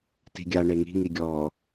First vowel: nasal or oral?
oral